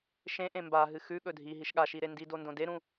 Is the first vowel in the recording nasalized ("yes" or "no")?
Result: yes